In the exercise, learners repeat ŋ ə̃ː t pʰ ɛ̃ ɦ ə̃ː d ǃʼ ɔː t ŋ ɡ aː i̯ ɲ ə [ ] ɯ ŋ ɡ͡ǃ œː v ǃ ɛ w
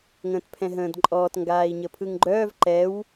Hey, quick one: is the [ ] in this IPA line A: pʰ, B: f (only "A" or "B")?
A